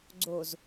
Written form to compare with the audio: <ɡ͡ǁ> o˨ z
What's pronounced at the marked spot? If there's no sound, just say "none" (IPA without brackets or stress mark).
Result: ɡ͡ǀ